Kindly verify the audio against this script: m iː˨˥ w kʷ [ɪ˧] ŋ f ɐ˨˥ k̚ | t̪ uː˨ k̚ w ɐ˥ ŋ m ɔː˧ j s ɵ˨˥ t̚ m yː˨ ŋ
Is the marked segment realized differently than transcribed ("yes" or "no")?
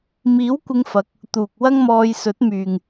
no